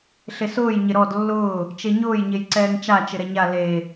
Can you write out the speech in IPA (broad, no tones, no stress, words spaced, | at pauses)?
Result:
ɬesʊːj ɲɪɾɔd lːʊː | t͡ʃeɲʊːj ɲejǀɛːŋt͡ʃa t͡ʃɪɾɛɲa le